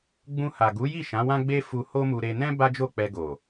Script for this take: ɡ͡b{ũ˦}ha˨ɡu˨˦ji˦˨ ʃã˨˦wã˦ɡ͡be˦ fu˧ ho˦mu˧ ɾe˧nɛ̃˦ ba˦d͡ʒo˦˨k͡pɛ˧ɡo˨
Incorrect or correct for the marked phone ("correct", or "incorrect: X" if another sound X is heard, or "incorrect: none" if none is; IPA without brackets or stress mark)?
incorrect: ũ˧